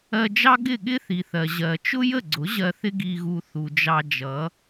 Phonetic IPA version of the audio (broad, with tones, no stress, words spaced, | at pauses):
ɜ˧d͡ʒɑ˥ ɡɪ˥˩ɠɪ˥ θi˩θɜ˩ ʑɜ˩ t͡ʃʊ˥jə˥˩ɡ͡ǀʊ˩˥ ʑɜ˧θɪ˥ ɡi˧ɣu˧ θu˩d͡ʒɑ˧d͡ʒʌ˩˥